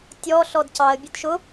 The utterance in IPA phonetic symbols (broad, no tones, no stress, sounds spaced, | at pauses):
tʲ ɔ ɬ ɔ d c ɑ ə̯ bʲ ʊ d ʃ ʊ